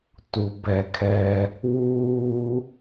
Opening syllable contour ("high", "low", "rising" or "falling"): low